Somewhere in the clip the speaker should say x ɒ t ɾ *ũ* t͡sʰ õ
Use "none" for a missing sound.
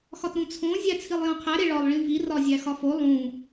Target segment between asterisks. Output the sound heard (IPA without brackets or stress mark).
ũ